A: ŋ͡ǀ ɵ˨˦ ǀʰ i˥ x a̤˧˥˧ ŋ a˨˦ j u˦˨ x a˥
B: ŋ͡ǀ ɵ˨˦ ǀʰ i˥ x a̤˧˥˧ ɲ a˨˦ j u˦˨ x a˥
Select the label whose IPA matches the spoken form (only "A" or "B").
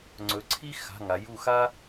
A